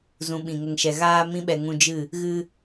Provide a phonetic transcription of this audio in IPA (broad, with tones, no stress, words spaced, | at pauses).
zũ˧ɓĩ˨ŋə˧ŋʃɛ˧ ɣaː˧mĩ˧ɓɛ˨ ŋũ˧d͡ʒɨ˦˨ | ɣɨ˧